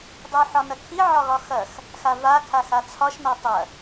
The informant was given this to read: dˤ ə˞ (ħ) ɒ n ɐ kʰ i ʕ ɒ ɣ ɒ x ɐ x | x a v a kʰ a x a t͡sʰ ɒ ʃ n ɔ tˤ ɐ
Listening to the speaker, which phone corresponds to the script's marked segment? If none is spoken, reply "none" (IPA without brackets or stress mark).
ħ